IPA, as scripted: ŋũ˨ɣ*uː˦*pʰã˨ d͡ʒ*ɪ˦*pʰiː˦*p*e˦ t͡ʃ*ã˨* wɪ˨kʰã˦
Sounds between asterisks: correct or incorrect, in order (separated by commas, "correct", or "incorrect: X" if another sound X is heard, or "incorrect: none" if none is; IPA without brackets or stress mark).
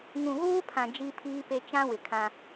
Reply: correct, incorrect: i˦, correct, incorrect: ã˦